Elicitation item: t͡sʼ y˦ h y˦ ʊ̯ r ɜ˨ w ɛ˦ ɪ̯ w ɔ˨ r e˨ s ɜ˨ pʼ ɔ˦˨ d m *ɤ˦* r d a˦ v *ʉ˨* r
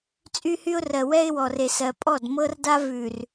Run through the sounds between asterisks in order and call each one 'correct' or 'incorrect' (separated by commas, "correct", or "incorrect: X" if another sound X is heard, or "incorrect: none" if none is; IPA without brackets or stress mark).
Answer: correct, correct